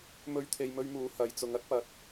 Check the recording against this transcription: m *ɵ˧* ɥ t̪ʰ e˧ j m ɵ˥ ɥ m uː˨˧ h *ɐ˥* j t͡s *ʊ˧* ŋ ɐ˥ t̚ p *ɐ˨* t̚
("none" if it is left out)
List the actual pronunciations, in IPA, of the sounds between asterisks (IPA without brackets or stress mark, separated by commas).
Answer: ɵ˥, ɐ˨˧, ʊ˨˧, ɐ˨˥